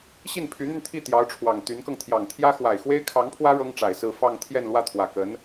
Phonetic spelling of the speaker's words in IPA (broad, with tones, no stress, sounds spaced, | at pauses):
ɕ i˥˩ n pʰ y˧˥ n̪ y˧ n t̪ʰ i˥˩ t̪ j ɑ˧˥ ʊ̯ ʈ͡ʂʰ w ɑ˨˩ ŋ t̪ y˧˥ n k ɤ˧ ŋ t̪ʰ j ɑ˨˩ ŋ t̪ʰ j ä˥ x w a˨˩ ɪ̯ x w e˥ ɪ̯ kʰ ɑ˧˥ ŋ pʰ w ä˥ ɻ ɤ˥ ŋ ʈ͡ʂ a˨˩ ɪ̯ s ɹ̩˥˧ f ɑ˥˧ ŋ t̪ʰ j ɛ˥˧ n l w ä˥˩ t̪ʰ w ä˨˩ k ə˧˥ n